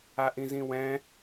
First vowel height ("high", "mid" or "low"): low